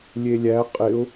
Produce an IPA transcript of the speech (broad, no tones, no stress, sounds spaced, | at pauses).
lʲ e lʲ æ qʼ ɪ ʊ̯